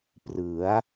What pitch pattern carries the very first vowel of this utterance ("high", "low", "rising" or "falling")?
rising